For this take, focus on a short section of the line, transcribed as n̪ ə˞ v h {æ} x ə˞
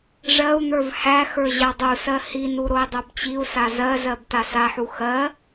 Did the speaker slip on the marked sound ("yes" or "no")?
no